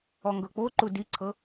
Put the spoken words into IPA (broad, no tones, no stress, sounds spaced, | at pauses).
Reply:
ɔ ŋ ɡ ɤ k͡p o ǃ u d i ǀʰ ɤ